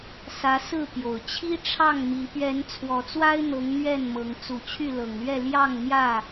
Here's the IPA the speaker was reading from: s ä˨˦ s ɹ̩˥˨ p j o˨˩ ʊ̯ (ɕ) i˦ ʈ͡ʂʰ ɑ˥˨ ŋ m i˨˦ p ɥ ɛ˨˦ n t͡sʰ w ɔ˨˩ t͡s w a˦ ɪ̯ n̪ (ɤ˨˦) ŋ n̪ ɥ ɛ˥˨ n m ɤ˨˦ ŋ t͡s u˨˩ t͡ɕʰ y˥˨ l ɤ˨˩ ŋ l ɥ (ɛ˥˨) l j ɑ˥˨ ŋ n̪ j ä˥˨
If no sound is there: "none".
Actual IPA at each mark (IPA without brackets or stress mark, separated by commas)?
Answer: t͡ɕʰ, ɤ˨˦, ɛ˥˨